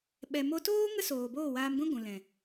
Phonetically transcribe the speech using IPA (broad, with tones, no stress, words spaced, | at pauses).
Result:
ɓɛ˨mo˧ toː˦ ŋə˦soː˨ boː˦˨waː˧mɡʷĩ˦ ɡʷũ˨lɛ̃˨